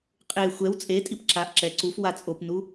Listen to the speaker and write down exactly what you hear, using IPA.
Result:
qʼ e xʷ ɛ w t͡sʼ e tʼ i p ǁ a ʔ ǁ ɛ ǀ u f w a t͡sʼ o p n u

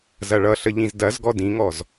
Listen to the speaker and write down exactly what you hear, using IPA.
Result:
z ɐ ɭ ʌ ɬ ə ʎ ĩ z d ɐ z ɡ ɔ d ĩ ŋ ɔ z

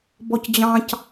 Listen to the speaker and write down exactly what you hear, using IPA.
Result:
b ɔ c d͡ʑ ɑ̃ c

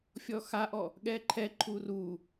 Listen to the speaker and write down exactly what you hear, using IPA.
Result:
fʲ ɔ x a ʔ ɔ | ɠ ɛ ǃʰ ɛ ǃʰ u r u

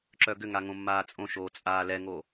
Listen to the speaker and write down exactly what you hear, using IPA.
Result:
ǁ œ ɡ ʏ ŋ a ŋ õ mː aː t͡sʼ õ ʃ oː t͡sʼ aː l ɛ ŋ o

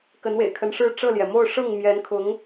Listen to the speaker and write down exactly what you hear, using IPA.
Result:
k ə˧˥ n w ḛ˨˩ ɪ̯ kʰ ə˧˥ n ʂ ɻ̩˥˧ ʈ͡ʂ ɤ˥˩ l j ɛ˩ m o˥˧ ʊ̯ ʂ ɤ˥˩ ŋ m j ɛ˧˥ n kʰ ʊ˧˥ ŋ

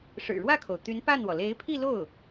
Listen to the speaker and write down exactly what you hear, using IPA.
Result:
ʂ ɻ̩˨˩ ɻ w ä˥˩ kʰ o˩ ʊ̯ t̪ y˧˥ n p a˥˩ n w ɔ˩ l e˧˥ ɪ̯ pʰ i˥˧ l o˥˩ ʊ̯

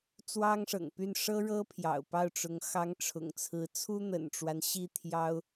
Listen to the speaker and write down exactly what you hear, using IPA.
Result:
t͡s w ɑ˥ ŋ ʂ ɤ̰˨˩ ŋ p y˥˩ n ʂ ɤ˥ ɻ ɤ˥ pʰ j ɑ̰˨˩ ʊ̯ p ɑ˥˩ ʊ̯ ʈ͡ʂ ʊ˧˥ ŋ x ɑ˧˥ ŋ ʈ͡ʂʰ ʊ̰˨˩ ŋ t͡sʰ ɹ̩˧˥ t͡sʰ u˥ n̪ ə̰˨˩ n ʈ͡ʂ w a˦ n ɕ i˥˩ t̪ʰ j ɑ˥ ʊ̯

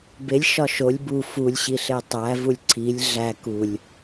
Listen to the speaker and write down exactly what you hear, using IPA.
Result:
b e lʲ ʃ ɒ ʃ o lʲ b u f u lʲ ɕ i ɬ e tˤ æ v u lʲ ǀʰ i lʲ ɮ æ k u lʲ

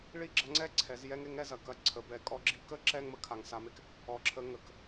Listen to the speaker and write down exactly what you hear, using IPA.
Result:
ɭ i˥ ɡ͡ǁ ɐ˧˥ ŋ͡ǀ ɛ˥ ǀʰ ɛ˩˧ z j ɛ˥ ŋ e˧˥ ŋ ɛ˧ z ɐ˩ k ɐ˧ ǀʰ ə˩˧ b ɛ˩˧ kʼ ɔ˧˥ ɡ͡ǁ i˧˥ k ə˥ ǁ ɛ˧ ŋ m ə˩˧ kʰ a˩˧ ŋ s a˩˧ m e˩ k | ɔ˧˥ ǁʰ ə˧˥ ŋ ə˩ k

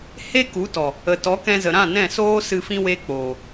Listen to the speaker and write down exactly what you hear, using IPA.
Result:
h e˦ k u˨˦ t ɔ˨ | ə˨ t ɔ˨˦ k ɛ̃˧ z ə˨ ɾ ã˦˨ n ɛ̃˦˨ s oː˦ s ɨ˧ f ĩ˦ w e˦ k͡p oː˨

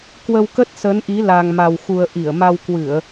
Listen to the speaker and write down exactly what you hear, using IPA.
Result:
k w ə˧ w k ə˦˥ t̚ s ə˨˦ n ʔ i˨˦ l a˧ ŋ m a˧ w x u˧ ə̯ ʔ i˧˩ ə̯ m a˧ w k w ɨ˧˩˨ ə̯

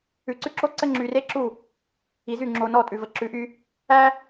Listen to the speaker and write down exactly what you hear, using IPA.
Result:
ʉ˨ ǀ ʉ˦ ǁ o˦ ǀ ə˦ ŋ͡ǁ y˨ r e˦ ǁ u˦˨ | i˨ z y˦˨ ŋ͡ǁ o˨ n ɔ˦˨ tʼ ʉ˨ v ə˨ ǁ ʉ˨˦ ʔ y˦ | æ˦

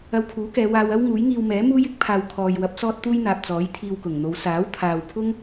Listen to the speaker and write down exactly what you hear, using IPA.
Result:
ɐ˧ w kʰ uː˨˥ k ɛː˨˧ w aː˧ w ɐ˥ w ŋ uː˨˥ j ŋ iː˧ w m ɛː˨˥ m uː˥ j ɪ˥ k̚ pʰ aː˨ w kʰ ɔː˨ j w ɐ˨˥ p̚ s ɔː˥ t̚ t̪ uː˥ j n̪ aː˨ p̚ t͡s ɔː˨˥ j t̪ʰ iː˧ w k ʊ˨˩ ŋ n̪ o˨˧ w s aː˨˥ w t̪ʰ aː˨ w pʰ ʊ˥ ŋ

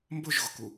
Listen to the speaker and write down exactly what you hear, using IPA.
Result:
m b ʊ ʒ ɣ ʊ k u

